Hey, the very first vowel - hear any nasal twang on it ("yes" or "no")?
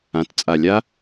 yes